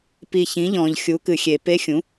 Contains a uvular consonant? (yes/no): no